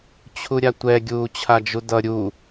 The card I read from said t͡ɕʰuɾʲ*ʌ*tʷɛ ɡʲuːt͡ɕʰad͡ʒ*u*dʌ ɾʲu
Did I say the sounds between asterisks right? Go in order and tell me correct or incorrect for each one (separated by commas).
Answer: incorrect, correct